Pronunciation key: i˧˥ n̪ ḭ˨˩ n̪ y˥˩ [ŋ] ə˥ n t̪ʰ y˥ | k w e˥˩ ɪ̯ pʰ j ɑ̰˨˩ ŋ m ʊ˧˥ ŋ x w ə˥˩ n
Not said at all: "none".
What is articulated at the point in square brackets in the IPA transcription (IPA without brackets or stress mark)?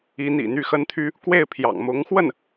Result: x